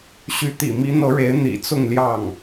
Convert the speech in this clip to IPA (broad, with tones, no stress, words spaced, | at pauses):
ɕy˧˥ t̪ḭ˨˩mi˧˥n̪ɤ˧˥ɻe˧˥ɪ̯ n̪ḭ˨˩t͡sʊ˥˧ŋljɑ˥˩ŋ